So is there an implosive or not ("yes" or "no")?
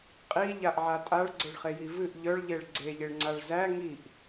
no